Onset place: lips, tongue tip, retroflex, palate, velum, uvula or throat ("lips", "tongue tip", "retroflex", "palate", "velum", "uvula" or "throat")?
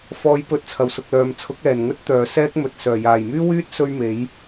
lips